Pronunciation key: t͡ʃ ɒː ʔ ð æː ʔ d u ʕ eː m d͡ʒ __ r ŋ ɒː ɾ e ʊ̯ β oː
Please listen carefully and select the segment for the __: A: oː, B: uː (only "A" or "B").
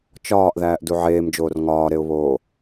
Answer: A